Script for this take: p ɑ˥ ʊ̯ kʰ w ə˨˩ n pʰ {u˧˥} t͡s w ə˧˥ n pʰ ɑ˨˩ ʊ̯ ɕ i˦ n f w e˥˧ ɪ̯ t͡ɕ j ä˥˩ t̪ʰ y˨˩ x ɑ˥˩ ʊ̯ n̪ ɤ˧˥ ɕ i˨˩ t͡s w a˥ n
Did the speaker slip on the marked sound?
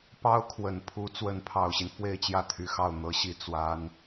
no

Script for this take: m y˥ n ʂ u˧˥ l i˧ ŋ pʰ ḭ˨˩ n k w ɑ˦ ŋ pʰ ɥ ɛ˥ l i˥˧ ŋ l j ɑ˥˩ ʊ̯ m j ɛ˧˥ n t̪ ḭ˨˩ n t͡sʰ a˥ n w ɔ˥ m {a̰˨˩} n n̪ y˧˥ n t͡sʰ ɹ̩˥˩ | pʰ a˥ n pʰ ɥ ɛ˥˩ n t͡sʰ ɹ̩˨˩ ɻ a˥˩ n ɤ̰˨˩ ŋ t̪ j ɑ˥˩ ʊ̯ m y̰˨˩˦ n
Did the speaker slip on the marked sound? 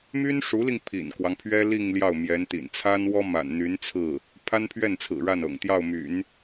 no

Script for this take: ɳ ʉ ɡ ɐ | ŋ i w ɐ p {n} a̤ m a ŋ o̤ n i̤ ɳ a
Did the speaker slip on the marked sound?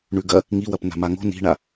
no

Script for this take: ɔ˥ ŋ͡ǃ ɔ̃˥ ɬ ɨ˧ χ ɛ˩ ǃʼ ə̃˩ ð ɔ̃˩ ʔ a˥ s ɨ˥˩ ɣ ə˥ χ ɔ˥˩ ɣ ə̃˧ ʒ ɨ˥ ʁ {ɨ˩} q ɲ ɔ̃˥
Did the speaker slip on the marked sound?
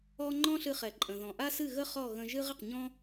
yes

